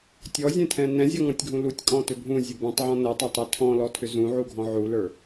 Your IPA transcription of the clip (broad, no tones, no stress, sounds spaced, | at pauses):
tʲ ɔ zʲ ɛ̃ tʰ ɛ̃ n ɛ̃ zʲ ɔ ŋ ɔ̃ tʲ ɡʱ ũ l u tʲ kʼ ɔ̃ t ʏ bʱ ũ zʲ ɘ b ũ tˤ ʕ ɔ̃ n ɘ tˤ ɐ tˤ ɛ tʰ ɔ̃ l ɔ tʰ ʏ z ũ ʕ u ɡʱ ɔ̃ ʕ u l ə˞